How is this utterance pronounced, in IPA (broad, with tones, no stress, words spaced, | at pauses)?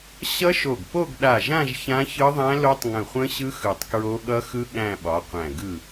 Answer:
ɕʌ˦˥ʃo˧˩ɡ po˥˧ɡɗa˧˩ʒã˥˧ʒ çã˦˥çɯ˦˥ðˤæ̃˦˥ lo˦˥tˤŋə̃˧˩χʷə̃˦˥ɕɯ˦˥ xɯ˧˩tˤkɹo˦˥ ɠʌ˦˥xɯ˦˥ ɠæ̃˥˧ɓɒ˨˥qʷæ̃˧˩ ɡɯ˧˩